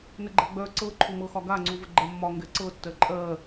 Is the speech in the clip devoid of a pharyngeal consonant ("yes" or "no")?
yes